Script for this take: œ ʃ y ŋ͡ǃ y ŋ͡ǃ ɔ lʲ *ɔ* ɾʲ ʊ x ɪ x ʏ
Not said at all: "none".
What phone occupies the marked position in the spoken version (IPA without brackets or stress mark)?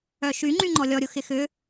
ɔ